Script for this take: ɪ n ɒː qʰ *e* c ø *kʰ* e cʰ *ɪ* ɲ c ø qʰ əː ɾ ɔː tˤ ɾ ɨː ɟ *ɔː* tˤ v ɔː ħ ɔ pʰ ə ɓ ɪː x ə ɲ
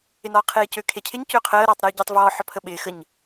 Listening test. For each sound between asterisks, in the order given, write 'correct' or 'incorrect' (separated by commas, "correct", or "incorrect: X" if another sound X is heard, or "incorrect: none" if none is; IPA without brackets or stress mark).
incorrect: eː, correct, correct, incorrect: əː